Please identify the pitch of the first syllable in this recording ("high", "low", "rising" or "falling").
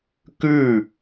falling